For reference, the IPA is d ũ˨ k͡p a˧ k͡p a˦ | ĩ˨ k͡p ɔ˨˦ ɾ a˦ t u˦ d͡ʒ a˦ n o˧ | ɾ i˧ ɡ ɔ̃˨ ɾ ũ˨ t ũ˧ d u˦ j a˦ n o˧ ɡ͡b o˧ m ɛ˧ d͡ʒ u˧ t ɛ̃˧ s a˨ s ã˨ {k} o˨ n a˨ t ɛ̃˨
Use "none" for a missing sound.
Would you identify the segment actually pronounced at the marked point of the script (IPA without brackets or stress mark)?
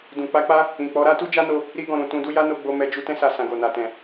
ɡ